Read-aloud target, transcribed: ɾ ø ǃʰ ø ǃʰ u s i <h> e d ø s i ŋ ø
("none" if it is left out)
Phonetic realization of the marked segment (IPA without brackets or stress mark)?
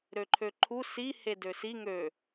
h